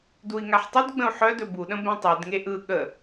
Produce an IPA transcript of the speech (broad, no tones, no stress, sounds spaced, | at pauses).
d u i̯ ŋ a ħ tˤ u d ɡ͡b ə̃ u̯ ħ œ d ɵ b u ɗ ə̃ b ɛ̃ tˤ ɵ d ŋ e ʔ ɯ ɠ ə